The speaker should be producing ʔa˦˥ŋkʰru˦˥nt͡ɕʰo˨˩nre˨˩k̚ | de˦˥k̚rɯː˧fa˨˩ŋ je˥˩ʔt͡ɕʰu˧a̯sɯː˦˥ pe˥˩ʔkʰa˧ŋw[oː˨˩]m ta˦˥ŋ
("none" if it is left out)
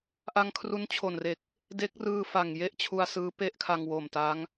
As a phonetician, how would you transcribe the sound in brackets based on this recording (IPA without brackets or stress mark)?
oː˨˩